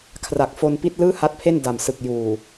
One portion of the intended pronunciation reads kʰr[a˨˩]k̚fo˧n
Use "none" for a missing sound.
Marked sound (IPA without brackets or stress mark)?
a˨˩